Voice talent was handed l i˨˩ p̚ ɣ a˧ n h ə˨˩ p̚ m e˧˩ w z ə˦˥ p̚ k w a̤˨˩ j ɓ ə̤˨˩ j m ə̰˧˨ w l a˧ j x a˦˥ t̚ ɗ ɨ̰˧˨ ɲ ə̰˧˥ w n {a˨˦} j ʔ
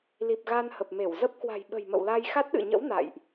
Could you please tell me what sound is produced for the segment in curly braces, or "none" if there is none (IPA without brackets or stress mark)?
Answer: a̰˧˨